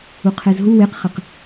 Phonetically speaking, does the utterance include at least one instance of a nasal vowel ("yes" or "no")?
no